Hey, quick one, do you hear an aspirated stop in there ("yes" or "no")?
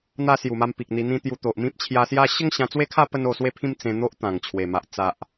yes